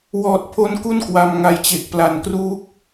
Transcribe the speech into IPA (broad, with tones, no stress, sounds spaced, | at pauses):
w ɔː˨˩ t̚ pʰ o˧ n k u˥˩ n k w a˧ m ŋ a˧ j t͡ɕ e˨˩ k̚ p l a˨˩ n k r uː˦˥ k̚